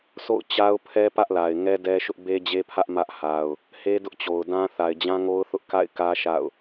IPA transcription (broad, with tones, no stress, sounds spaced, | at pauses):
sʰ o̰˦˨ ʊ̯ t͡ɕ a˦ ʊ̯ pʰ ɛ˦ p ä˦ ʔ l a˨ ɪ̯ ŋ ɛ˦ d ɛ˦ ʃ ʊ˦ ʔ b e˦ d͡ʑ e˦ pʰ ä˦ ʔ m ä˦ ʔ h a˦ ʊ̯ | h e˦ d ʊ˦ ʔ t͡ɕ o˨ ʊ̯ d ã˦ θ a˨ ɪ̯ d͡ʑ ã˦ ŋ o˦ ʊ̯ θ ʊ˦ ʔ k a̰˦˨ ɪ̯ k ä˦ ʃ a̰˦˨ ʊ̯